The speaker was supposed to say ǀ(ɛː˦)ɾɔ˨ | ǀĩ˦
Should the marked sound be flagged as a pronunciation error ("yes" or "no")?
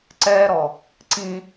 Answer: no